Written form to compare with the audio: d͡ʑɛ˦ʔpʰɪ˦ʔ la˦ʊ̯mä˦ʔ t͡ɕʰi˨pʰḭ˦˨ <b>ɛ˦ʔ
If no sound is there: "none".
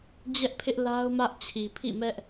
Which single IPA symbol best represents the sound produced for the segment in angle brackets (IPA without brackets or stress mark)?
m